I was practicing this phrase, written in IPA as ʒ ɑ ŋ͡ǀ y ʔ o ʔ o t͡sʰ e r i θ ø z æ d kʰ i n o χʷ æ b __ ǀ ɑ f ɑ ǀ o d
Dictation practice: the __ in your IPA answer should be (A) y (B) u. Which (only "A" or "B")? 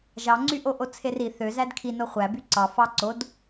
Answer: A